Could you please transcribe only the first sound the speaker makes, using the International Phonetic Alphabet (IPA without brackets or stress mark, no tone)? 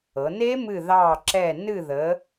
ɤ